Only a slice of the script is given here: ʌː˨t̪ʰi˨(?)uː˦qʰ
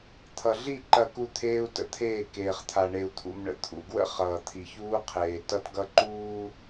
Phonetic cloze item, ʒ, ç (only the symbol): ç